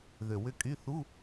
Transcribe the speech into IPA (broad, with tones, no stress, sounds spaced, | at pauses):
ð ø˨˩ w ʏ˦˨ kʼ y˧˥˧ θ u˧˥˧